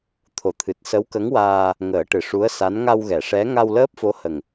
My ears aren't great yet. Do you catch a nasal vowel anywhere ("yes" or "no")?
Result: no